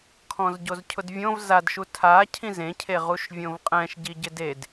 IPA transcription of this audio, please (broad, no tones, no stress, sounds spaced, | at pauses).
kʰ ɔ̃ z ɟ o z cʰ ʊ d vʲ õ v z a d ʃ u tʰ a cʰ ĩ z ẽ cʰ e ʁ u ʃ vʲ õ v qʼ ɛ̃ ʃ ɟ i ɟ ɪ d e d